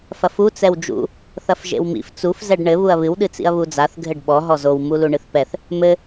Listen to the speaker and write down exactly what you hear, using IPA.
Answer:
f ɐ f u t͡s ɛ w d͡ʒ ṵ | θ ɐ f ʒ ḛ w m ḭ f t͡s u f z ɛ ɖ ɳ ɘ β u ɐ̯ β ɨ w ɗ ɨ t͡s ḭ ɐ̯ β u d͡z a θ ɡʱ ɘ ɖ ɓ ɔ ɦ ɔ z o w m u l u ɳ ɨ θ p ɛ θ | m ɘ

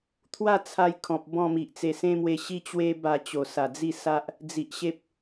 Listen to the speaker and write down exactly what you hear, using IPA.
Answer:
t̪ʰ w a˥˧ t͡sʰ a˧ j kʰ ɔ̃˨ p̚ b ɔ̃˥˧ m i˨ ʔ t͡s e˧ s ẽ˦ m w e˧ ɕ i˦ t͡ɕ w e˦ b a˧ t͡ɕ o˨˩ s a˨˩ d͡z i˥˧ s a˦ ʔ | d͡z i˨ ʔ ɕ e˦ p̚

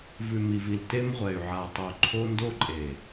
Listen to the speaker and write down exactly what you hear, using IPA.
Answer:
v ʉ˨ m i˨ v i˨ l t e˦ m ʁʷ ɛ˨ y̯ ʕ a˨ tˤ o˨ ǃʰ o˦ n d o˦ ǃʼ e˨

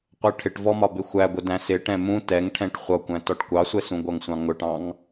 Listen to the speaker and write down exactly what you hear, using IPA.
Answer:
qʷ ɜ ʈʰ ɪ ʈ v ɔ m ɒ b ɪ xʷ æ ɡʷ ə d æ̃ s ɪ ʈ ɛ̃ m ũ t ɛ ŋ ʈʰ ɛ̃ ʈ χʷ ʌ kʷ æ̃ t ɔ ʈ kʷ ɑ sʷ ɛ s ũ ɡʷ ʌ ŋ sʷ ɑ̃ ŋ ʊ ʈ ɑ̃ ŋ

